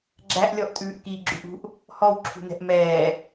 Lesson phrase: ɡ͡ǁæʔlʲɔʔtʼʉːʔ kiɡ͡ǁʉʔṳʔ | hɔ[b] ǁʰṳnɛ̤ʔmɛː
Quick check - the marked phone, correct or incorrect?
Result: incorrect